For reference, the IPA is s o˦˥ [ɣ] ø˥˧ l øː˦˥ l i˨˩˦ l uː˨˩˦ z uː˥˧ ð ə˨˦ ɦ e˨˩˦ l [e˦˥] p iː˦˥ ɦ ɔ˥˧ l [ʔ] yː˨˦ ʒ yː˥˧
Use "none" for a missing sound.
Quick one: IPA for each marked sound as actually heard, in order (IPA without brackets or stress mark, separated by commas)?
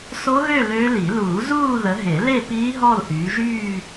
ɣ, e˥˧, ʔ